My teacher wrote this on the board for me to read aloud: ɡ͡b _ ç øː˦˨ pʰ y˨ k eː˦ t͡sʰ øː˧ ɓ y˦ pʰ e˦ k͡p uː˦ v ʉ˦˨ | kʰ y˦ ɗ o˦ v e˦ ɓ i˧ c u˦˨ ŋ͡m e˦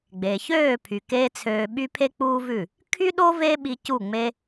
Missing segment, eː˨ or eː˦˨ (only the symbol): eː˨